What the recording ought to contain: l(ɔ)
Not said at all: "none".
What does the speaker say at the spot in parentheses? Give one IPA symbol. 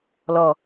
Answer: ɔ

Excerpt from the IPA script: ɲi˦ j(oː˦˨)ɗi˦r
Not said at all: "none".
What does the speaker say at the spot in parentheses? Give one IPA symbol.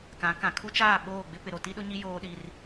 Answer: oː˦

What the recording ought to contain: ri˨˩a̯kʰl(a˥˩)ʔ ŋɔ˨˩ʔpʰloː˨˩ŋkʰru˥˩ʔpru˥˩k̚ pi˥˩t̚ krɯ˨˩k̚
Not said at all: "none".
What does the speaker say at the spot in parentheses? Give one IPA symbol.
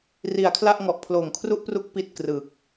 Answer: a˥˩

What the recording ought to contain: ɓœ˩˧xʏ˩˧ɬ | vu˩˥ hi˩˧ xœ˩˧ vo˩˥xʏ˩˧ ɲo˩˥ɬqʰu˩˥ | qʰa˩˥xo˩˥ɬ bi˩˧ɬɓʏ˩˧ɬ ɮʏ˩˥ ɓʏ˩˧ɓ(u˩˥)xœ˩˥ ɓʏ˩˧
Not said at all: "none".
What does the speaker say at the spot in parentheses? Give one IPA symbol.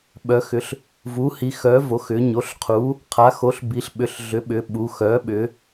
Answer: u˩˧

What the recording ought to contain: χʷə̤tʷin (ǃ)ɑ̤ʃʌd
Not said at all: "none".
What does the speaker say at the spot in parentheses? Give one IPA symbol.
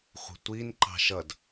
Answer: ǃ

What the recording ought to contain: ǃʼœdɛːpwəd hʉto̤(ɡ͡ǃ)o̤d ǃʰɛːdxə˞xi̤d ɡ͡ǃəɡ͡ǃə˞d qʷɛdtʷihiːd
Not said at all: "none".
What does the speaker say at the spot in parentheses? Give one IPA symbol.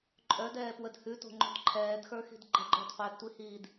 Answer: ŋ͡ǃ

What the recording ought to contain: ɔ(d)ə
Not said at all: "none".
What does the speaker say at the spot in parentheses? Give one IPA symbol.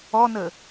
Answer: n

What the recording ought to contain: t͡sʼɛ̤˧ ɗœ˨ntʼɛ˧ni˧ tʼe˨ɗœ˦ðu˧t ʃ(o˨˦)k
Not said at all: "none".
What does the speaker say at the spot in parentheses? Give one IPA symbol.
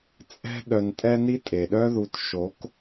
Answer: o˨˦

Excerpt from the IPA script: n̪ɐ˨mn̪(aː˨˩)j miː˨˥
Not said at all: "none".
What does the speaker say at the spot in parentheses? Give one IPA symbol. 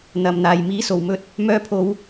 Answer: aː˨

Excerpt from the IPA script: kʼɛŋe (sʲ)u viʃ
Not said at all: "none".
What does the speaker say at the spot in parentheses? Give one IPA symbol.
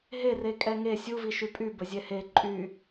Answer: sʲ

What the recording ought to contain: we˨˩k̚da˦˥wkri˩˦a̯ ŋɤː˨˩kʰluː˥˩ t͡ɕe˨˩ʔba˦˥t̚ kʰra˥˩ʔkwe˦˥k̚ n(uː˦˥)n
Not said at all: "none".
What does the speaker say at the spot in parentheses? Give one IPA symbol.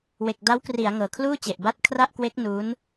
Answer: uː˦˥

